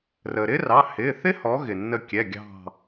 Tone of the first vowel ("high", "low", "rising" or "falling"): low